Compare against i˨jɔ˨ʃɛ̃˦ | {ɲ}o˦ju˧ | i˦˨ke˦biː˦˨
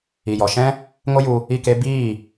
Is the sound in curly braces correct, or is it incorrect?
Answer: incorrect: ŋ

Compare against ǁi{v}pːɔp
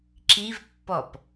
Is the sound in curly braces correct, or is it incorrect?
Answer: correct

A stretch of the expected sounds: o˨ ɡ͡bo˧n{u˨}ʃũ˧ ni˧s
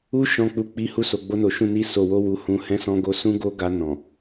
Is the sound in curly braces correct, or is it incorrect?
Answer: incorrect: o˨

